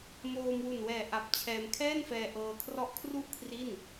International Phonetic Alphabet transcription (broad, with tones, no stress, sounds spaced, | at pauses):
m oː˧ m w u˨˩ n w ɛː˨˩ ʔ a˨˩ p̚ t͡ɕʰ ɛː˧ m kʰ ɛː˥˩ n f ɛː˧ ʔ ɤː˧ kʰ r ɔ˦˥ ʔ kʰ r u˥˩ ʔ kʰ r i˥˩ n